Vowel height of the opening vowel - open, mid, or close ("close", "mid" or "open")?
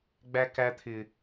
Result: open